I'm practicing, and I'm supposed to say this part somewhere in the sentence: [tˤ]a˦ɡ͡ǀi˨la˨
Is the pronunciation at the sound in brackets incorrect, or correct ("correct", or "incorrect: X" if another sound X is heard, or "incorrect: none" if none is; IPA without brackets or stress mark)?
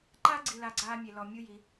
incorrect: ǃ